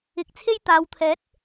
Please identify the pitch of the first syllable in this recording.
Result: rising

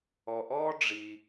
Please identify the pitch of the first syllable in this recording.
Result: low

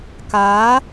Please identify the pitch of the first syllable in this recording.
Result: rising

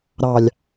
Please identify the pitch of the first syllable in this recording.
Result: low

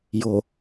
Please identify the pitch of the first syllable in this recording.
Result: low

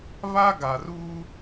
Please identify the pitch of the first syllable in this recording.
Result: high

